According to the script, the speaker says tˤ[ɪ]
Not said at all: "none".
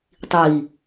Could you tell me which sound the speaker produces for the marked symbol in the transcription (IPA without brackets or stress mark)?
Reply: i